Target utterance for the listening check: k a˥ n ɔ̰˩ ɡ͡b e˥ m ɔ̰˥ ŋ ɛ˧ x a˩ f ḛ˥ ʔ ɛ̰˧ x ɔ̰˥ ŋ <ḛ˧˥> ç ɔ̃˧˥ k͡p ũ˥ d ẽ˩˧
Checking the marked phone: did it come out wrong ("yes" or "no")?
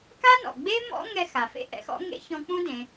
yes